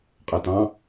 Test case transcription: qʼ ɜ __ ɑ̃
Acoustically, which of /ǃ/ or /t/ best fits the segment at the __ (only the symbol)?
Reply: t